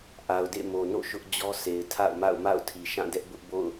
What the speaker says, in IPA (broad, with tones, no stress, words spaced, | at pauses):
ʔa˨ʊ̯dḛ˦˨mo˨no̰˦˨ ʃʊ˦ʔd͡ʑɔ˦ sʰe˨ɪ̯tʰa̰˦˨ʊ̯ma̰˦˨ʊ̯ ma̰˦˨ʊ̯tʰi˨ ʃã˦˨dɛ˦ʔ bʊ˦ʔbo̰˦˨ʊ̯